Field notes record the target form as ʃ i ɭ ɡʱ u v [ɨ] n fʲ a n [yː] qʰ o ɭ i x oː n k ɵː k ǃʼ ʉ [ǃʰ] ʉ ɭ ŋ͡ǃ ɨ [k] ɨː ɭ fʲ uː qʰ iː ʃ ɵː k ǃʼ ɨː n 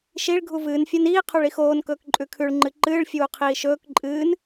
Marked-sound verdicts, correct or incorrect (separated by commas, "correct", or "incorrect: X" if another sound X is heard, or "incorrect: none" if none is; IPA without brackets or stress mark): incorrect: ɨː, incorrect: iː, incorrect: kʰ, incorrect: ǃ